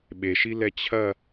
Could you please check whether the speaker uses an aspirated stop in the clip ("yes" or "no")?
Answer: yes